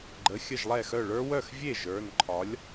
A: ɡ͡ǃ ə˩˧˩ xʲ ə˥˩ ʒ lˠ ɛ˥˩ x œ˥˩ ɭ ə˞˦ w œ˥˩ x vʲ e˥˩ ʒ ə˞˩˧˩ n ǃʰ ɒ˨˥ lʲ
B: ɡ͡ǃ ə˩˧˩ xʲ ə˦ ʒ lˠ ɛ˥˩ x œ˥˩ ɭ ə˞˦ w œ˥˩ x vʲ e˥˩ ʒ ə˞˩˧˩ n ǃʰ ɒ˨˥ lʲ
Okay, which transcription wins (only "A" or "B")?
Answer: A